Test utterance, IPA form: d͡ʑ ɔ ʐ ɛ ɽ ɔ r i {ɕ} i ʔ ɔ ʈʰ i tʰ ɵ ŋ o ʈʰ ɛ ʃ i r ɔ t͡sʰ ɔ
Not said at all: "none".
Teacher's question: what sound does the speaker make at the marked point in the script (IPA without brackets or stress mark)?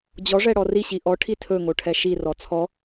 ɕ